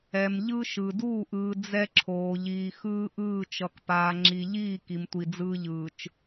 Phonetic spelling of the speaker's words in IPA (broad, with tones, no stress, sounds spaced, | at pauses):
ɛ˨ m ʎ ɯ˦ ʃ ɯ˨ d uː˦˨ ʔ ɯː˨ d͡z ɛ˦ ǁʰ oː˨ ʎ iː˨ x ɯː˦ ʔ ɯː˦˨ t͡ʃ ʌ˨ k p aː˨ ŋ͡ǁ i˨ ʎ iː˦˨ k i˨ m tʷ i˨ d͡z ɯː˦ ʎ ɯː˨ t͡ʃ